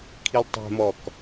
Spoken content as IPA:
kʰilˠtˤɛ̤mɔk

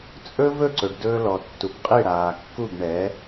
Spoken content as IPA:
t͡sʼɵ˥ vɵ˥˩ǀɵ˩ɖdɵː˧lɔ˩ tːu˩p qʼi˥˩ɽaː˩kːu˥˩b ɳɛ˩˥

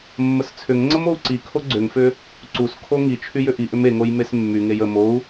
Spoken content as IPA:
mːəst͡sʰʏŋŋ͡ǀəm ou̯ǀikʰo ɡ͡ǀʏŋfʏ | ǀuskʰo ŋit͡ʃʰy jʏʔiʔʏm eŋoj mesmːyŋej ə mou̯

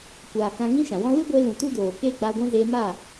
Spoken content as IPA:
kʷaː˨ kã˧ŋĩ˦ʃã˨wɔ̃˦ lɨ˦ɡʷe˧ lũ˨tu˦doː˨ keː˦ɡ͡ba˧ɡʷɛ̃˦ zeː˧maː˦˨

